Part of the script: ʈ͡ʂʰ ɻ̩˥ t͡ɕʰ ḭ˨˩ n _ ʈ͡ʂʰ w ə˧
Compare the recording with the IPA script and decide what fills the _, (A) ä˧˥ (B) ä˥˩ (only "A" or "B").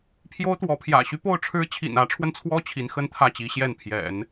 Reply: A